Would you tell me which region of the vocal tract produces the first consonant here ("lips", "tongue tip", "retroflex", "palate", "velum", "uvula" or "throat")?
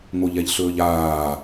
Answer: velum